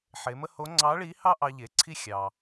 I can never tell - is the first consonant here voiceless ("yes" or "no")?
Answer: yes